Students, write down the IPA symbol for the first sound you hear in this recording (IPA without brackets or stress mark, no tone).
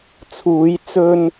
t͡sʰ